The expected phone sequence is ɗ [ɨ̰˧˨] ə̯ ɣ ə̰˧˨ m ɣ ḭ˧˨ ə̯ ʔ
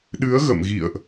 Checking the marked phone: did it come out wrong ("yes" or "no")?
yes